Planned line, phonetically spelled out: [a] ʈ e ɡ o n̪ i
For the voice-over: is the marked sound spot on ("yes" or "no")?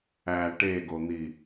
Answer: no